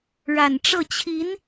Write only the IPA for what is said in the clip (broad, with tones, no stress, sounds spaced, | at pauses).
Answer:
ɻ a˨˩ n ʈ͡ʂ ɤ˥˩ t͡ɕʰ i˧˥ n